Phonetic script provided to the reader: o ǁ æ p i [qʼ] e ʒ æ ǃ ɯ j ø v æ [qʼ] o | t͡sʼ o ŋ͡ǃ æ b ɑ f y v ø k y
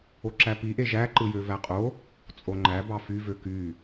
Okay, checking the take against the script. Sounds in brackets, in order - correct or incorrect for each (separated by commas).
incorrect, correct